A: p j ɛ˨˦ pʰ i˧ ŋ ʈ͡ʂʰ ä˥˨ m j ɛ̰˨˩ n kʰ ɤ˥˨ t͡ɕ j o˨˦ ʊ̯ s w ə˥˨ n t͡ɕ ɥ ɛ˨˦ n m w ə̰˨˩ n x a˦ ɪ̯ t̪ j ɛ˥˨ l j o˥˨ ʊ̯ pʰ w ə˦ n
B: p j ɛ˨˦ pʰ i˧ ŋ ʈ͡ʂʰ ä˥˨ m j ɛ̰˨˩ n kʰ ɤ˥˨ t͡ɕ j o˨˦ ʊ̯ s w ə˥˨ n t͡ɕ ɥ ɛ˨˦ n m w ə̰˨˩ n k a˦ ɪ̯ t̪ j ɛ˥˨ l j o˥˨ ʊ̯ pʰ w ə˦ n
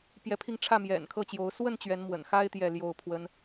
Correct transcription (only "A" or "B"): A